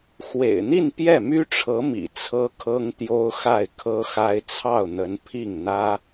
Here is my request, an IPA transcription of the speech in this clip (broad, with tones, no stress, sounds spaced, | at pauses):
x w ḛ˨˩ ɪ̯ n̪ i˥˧ n p j ɛ˥˩ m y˥ ʈ͡ʂʰ ɤ˧˥ m ḭ˨˩ t͡sʰ ɤ˥ kʰ ɤ˥ ŋ t̪ j o˥ ʊ̯ x a˥˩ ɪ̯ kʰ ɤ˥ x a˥ ɪ̯ t͡sʰ ɑ˥˩ ʊ̯ n̪ ə˧˥ n pʰ i˥˩ ŋ n̪ ä˥